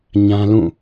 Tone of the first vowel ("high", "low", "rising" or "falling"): high